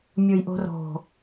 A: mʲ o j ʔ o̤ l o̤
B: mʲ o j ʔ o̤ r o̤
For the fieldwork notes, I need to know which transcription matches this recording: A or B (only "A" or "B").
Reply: B